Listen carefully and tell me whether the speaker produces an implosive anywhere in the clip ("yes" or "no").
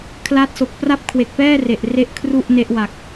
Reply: no